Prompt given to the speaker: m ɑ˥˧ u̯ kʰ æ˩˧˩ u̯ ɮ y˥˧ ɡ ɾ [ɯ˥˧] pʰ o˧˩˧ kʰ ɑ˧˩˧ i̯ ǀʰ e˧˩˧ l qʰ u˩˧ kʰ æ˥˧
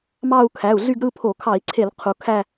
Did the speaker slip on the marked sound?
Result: no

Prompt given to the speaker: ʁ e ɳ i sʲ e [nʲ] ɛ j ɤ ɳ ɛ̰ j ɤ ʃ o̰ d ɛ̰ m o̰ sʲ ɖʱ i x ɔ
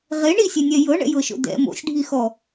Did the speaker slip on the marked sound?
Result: no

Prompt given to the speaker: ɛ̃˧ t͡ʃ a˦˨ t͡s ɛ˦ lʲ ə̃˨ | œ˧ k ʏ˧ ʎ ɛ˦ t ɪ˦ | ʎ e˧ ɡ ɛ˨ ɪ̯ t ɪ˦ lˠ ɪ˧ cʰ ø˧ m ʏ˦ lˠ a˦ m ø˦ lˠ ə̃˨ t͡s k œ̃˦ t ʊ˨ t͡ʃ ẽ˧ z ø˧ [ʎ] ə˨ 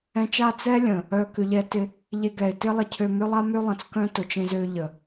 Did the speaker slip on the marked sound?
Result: no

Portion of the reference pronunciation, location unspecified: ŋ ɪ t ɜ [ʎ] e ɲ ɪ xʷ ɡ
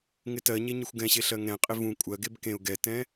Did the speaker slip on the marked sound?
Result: yes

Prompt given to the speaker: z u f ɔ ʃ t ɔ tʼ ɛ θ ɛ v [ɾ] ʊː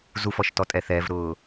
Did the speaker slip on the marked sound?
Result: no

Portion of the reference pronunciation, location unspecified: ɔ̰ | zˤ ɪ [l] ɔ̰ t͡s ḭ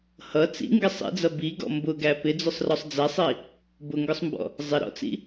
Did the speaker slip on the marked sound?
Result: yes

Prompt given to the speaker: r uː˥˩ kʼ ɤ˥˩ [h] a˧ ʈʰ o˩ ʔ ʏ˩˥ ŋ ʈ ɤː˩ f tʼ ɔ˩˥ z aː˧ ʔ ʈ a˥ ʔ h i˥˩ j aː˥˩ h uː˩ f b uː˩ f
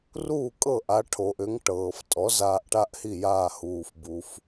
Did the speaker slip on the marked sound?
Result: yes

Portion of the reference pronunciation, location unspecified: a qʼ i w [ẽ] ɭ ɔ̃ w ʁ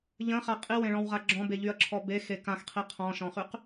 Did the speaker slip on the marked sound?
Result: no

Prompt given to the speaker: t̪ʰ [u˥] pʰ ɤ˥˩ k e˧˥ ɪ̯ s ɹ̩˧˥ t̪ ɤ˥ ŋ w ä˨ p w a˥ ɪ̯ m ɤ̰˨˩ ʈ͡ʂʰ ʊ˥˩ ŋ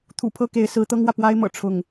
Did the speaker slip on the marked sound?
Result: yes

